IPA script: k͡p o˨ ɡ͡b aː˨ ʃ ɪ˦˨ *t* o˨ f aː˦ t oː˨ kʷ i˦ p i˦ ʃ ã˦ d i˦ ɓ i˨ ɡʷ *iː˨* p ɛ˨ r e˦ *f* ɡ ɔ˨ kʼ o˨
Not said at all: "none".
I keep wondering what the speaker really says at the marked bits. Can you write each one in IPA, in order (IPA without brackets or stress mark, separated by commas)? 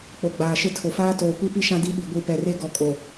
tʰ, i˨, none